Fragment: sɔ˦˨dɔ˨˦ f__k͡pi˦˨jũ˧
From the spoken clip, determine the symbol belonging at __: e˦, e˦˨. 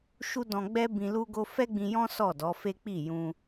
e˦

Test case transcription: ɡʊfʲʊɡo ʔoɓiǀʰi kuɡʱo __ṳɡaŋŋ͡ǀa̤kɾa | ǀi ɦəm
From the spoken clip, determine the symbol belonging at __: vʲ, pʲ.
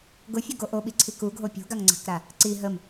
pʲ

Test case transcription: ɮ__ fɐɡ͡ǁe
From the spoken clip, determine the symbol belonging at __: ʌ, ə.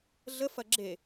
ə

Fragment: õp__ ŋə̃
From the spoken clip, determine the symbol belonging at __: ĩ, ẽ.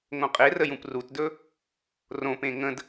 ẽ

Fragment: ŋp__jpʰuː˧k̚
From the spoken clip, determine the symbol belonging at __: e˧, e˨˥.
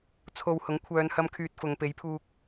e˨˥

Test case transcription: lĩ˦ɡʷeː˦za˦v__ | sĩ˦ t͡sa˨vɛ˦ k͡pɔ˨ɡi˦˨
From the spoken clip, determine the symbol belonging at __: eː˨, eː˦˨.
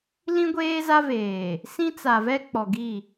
eː˨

